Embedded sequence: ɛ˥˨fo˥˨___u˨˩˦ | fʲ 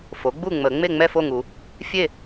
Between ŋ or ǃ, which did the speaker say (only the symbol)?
ŋ